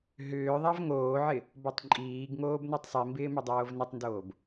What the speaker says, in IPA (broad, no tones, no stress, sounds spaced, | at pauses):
ɦ ʏː ðˤ a v ŋ oː ʕ ɪ | b ɔ tˤ ǃʼ iː ɡ ŋ oː b n o tˤ sˤ i m b ɪː m ʏ dˤ oː v n ɪ tˤ n d oː b